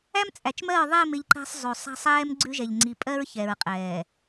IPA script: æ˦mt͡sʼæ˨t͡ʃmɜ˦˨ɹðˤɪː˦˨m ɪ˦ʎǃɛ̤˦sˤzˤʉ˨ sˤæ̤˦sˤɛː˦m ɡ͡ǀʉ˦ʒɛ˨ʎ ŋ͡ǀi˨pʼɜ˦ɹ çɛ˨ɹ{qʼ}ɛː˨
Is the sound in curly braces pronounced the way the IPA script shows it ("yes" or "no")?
yes